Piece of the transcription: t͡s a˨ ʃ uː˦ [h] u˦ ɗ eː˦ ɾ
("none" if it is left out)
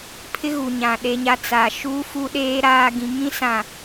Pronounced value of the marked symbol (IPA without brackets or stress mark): f